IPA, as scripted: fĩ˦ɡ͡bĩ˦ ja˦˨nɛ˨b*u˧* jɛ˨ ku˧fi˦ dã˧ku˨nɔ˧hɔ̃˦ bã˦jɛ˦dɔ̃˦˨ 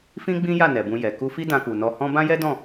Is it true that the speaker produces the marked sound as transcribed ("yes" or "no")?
no